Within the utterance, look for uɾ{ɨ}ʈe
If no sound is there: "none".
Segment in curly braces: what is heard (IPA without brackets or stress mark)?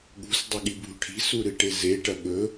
ɨ